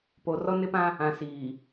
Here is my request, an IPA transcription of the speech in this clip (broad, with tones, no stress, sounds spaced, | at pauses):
p o˨ r ɔ˦ n ɪ˦ p ã˦ | ã˨ s iː˨